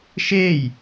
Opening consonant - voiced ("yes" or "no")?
no